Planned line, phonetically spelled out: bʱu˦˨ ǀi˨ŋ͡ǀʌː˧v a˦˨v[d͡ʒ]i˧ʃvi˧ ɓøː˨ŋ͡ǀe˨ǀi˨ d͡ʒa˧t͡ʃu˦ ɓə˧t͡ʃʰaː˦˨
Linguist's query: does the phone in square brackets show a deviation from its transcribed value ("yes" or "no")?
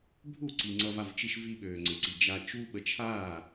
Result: yes